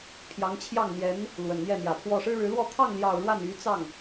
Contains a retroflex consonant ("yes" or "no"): yes